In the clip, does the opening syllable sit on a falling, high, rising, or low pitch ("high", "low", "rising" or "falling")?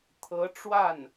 rising